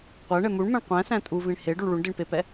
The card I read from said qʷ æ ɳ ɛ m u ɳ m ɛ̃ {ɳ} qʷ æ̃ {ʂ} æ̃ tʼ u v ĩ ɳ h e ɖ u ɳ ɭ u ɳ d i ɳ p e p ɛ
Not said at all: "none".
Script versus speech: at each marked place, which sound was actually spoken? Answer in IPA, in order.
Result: ɳ, s

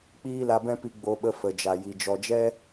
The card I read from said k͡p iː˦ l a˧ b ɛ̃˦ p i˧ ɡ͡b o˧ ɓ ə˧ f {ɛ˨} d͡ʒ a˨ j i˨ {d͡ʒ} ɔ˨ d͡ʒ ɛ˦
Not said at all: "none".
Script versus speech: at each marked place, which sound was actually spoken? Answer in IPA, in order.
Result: ə˨, d͡ʒ

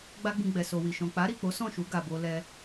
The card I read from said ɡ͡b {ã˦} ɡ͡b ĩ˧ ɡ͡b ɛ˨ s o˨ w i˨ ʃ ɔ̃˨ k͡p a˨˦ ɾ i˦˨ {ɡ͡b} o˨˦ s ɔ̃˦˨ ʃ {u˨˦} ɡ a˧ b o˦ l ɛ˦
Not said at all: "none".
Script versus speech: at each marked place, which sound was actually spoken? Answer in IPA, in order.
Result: a˦, k͡p, u˨˦

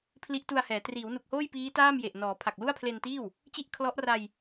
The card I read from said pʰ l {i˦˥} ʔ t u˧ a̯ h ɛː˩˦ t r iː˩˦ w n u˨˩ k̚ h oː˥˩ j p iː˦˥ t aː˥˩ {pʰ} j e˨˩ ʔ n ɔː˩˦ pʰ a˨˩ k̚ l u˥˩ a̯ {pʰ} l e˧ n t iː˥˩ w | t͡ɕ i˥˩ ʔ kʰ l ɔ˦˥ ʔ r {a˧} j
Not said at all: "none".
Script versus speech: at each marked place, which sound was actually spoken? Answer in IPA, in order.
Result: i˦˥, m, pʰ, a˧

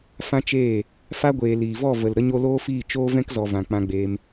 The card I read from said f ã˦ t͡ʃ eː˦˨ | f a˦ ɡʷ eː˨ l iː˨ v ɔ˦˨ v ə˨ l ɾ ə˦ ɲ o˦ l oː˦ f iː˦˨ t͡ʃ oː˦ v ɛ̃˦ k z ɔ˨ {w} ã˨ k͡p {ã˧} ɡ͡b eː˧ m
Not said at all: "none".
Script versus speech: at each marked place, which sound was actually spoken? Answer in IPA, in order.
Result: v, ã˧

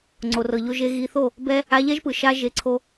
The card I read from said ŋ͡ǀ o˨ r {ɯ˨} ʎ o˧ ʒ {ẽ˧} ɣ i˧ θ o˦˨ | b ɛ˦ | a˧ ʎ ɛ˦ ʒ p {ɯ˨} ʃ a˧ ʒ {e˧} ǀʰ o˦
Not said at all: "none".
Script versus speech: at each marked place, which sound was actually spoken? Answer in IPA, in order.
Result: ɤ˨, e˧, ɯ˨, e˧

